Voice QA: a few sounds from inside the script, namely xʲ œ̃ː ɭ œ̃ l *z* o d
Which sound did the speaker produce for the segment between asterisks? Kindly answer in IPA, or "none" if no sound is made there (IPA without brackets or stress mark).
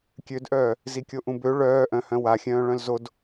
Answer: z